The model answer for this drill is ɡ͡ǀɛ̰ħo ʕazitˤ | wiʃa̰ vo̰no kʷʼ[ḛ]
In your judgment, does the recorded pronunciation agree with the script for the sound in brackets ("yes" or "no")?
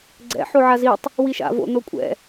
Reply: no